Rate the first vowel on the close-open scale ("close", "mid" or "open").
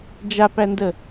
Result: open